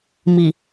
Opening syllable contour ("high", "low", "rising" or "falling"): low